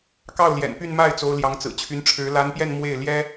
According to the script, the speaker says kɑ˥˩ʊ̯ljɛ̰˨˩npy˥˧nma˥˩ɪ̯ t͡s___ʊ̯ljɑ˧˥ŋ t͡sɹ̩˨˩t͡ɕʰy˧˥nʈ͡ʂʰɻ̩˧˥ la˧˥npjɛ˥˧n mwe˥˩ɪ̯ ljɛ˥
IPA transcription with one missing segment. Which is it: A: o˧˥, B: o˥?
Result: A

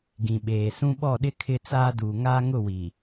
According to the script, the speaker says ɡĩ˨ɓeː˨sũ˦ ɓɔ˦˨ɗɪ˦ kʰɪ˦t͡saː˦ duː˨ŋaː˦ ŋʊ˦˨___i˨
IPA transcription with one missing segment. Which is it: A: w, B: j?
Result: A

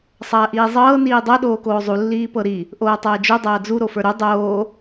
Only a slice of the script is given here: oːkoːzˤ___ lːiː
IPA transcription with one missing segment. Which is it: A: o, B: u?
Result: B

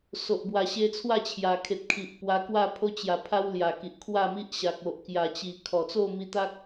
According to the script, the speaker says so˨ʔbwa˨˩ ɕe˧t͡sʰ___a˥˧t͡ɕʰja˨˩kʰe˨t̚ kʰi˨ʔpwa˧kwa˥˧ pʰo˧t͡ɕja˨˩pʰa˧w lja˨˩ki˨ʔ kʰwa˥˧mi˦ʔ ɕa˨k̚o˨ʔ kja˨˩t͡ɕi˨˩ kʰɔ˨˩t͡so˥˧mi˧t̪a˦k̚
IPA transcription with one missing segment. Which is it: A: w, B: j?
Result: A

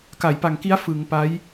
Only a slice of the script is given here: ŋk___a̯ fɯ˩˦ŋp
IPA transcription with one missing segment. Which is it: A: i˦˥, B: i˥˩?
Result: A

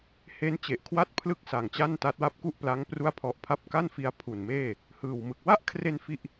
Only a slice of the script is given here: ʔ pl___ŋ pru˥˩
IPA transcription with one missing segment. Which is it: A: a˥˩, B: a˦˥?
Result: B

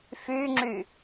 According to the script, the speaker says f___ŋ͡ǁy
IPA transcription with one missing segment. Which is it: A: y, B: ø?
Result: A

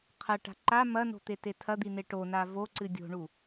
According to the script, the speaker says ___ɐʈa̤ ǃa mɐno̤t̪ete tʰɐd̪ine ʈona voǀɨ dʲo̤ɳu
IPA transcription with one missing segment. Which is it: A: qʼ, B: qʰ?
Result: B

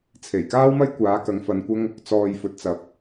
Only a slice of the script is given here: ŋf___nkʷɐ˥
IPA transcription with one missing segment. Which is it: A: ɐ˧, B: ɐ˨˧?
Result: A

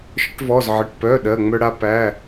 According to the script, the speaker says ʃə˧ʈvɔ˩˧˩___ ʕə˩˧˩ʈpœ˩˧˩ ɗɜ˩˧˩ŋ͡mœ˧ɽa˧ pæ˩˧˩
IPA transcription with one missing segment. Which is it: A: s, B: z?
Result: B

